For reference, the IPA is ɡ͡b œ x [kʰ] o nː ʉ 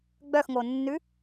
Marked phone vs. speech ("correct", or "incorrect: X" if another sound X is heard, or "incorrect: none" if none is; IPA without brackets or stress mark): incorrect: ŋ